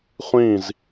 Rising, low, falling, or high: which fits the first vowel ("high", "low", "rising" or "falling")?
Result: falling